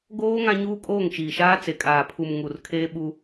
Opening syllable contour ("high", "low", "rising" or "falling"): high